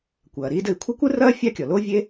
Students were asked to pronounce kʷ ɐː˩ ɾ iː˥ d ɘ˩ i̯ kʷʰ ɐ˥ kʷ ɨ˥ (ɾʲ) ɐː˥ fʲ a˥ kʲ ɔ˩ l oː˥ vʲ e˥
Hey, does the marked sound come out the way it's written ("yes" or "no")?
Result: no